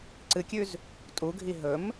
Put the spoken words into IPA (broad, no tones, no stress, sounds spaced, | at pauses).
ǀ ɨ kʲ ʉ z | tʼ u ɡʱ i ɦ ɵ m